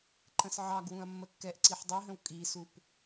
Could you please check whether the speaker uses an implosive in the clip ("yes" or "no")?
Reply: no